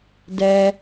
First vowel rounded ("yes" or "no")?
no